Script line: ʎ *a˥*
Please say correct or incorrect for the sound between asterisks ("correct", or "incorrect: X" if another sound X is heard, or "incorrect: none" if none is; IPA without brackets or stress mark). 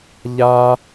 correct